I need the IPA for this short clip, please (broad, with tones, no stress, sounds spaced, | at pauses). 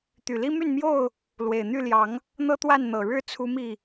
t̪ y˨˩ l i˦ m y˥˨ n m j o˥˨ ʊ̯ | l w e˨˩ ɪ̯ n̪ y˥˨ l j ɑ˨˦ ŋ | n̪ ɤ˦ t̪ w a˥˨ n n̪ ɤ˨˩ ɻ ɻ̩˥˨ t͡sʰ u˦ m i˥˨